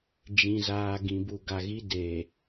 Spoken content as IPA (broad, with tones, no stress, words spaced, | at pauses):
d͡ʒĩ˨zaː˨ ɡĩ˨bu˨ɡa˨ɣi˦ de˨